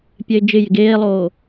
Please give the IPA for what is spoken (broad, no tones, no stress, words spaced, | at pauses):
pʲɛɪ̯d͡ʒɪ jɪɡeːlˠoː